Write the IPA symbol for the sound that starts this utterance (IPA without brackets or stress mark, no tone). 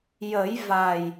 j